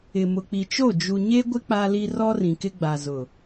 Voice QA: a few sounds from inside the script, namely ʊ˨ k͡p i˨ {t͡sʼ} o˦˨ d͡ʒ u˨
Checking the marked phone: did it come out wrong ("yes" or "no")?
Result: yes